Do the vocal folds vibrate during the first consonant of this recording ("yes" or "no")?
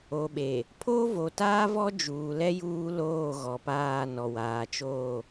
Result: yes